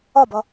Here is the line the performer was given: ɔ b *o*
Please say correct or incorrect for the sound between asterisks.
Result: incorrect